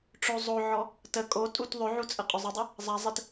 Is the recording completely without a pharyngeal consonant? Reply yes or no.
no